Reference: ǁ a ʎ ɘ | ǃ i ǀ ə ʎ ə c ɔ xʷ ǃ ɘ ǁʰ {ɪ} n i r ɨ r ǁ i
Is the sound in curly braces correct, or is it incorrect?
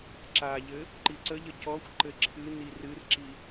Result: incorrect: ɨ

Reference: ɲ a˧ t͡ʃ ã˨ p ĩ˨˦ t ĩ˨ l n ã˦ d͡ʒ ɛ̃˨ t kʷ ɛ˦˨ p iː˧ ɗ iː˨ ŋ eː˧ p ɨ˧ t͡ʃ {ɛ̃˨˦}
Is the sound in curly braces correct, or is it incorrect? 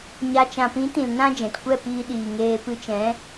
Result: correct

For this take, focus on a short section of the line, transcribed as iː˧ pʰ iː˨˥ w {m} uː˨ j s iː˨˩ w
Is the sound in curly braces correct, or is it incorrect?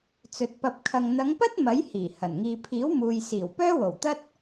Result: correct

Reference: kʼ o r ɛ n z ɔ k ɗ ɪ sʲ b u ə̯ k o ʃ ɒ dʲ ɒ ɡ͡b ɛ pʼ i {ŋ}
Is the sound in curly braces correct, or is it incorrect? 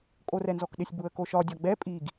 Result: incorrect: ɡ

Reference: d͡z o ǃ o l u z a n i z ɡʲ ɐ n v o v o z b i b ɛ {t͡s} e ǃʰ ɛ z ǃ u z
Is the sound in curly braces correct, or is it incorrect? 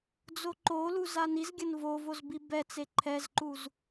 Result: correct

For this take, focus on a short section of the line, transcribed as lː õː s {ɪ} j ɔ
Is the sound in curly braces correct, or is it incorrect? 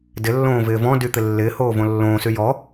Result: incorrect: y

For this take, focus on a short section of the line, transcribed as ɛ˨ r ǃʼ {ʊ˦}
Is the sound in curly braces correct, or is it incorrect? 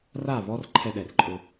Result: correct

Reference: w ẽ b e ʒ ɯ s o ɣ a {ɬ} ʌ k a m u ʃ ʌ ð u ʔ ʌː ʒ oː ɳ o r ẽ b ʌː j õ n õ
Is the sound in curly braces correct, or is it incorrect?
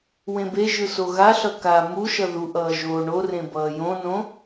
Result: correct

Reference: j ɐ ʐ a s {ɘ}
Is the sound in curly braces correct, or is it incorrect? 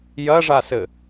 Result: correct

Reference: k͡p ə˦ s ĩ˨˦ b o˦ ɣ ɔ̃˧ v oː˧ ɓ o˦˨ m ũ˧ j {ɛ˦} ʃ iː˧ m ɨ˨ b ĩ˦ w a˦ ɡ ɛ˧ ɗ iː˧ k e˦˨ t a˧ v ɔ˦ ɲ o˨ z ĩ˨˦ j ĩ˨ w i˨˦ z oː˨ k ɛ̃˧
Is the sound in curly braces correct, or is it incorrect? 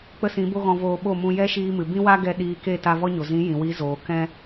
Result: correct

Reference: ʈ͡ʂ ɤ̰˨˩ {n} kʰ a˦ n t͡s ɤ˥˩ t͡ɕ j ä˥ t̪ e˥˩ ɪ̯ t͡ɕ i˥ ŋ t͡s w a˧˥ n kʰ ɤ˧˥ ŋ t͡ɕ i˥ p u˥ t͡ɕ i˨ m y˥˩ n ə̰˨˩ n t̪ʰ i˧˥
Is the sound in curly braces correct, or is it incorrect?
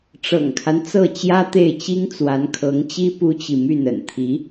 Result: incorrect: ŋ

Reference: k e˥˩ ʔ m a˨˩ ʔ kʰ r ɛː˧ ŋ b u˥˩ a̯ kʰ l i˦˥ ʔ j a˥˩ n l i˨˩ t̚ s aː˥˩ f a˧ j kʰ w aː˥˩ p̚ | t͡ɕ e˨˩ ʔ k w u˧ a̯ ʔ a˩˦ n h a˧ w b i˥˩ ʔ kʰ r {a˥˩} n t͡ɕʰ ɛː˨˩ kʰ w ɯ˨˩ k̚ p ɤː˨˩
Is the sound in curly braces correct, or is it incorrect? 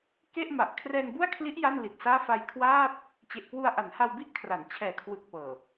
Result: incorrect: a˩˦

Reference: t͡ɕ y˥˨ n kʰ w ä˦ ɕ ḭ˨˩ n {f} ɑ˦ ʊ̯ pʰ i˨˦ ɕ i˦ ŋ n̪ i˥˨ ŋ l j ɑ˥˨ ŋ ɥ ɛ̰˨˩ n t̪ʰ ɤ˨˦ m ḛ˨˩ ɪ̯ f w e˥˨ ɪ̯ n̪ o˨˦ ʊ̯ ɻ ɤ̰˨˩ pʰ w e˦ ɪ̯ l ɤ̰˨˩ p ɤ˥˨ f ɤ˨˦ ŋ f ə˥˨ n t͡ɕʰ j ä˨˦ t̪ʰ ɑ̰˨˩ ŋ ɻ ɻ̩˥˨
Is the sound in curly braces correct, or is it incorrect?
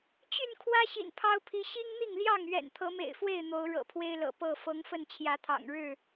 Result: incorrect: pʰ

